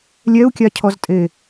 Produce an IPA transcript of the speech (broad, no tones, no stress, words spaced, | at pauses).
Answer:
lʲɛu̯kʲacʰɔztʼe